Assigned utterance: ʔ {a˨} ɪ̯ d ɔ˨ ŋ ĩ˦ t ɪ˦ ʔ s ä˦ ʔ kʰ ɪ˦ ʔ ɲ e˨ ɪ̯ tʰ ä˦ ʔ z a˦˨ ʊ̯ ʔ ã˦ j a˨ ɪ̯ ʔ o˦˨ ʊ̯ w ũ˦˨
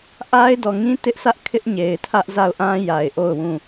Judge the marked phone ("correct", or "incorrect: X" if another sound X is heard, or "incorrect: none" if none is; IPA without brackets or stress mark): incorrect: a˦